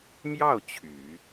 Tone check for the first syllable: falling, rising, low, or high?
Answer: falling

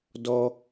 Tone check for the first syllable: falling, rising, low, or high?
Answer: high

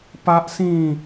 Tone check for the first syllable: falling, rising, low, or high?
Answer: high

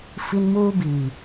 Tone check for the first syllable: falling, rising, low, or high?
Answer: high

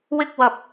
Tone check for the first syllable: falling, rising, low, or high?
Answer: high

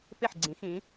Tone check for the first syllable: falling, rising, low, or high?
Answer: falling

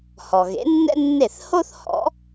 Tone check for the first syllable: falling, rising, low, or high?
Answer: low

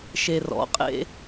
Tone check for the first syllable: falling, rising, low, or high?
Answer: low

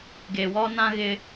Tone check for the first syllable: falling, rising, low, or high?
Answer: low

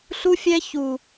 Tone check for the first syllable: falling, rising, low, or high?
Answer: high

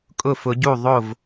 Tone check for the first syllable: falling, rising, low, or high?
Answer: falling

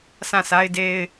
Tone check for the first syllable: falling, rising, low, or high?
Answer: falling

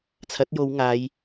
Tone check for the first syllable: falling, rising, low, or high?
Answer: rising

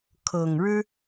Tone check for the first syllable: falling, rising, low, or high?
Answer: low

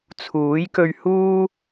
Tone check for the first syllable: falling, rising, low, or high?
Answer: rising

